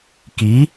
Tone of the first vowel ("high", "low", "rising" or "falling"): rising